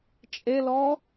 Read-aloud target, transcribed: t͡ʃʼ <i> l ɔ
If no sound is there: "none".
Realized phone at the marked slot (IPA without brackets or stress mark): e